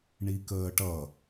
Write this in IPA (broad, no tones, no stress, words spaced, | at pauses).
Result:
ɳikəːʈʌ